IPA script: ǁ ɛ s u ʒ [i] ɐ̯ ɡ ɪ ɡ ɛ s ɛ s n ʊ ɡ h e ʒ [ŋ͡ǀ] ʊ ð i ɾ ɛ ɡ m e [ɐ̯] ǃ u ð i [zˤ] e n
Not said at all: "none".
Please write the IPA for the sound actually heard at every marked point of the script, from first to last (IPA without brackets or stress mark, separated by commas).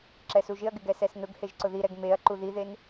ɪ, ǀ, ɐ̯, ð